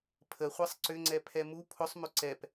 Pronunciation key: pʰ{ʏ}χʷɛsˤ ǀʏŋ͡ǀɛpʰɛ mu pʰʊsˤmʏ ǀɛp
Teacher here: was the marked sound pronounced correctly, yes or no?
no